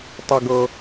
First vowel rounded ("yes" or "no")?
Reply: no